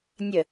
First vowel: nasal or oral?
oral